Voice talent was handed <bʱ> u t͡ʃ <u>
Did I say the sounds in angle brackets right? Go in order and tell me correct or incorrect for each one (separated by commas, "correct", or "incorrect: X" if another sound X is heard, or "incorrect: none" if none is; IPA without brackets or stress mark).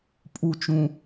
incorrect: pʼ, incorrect: ũ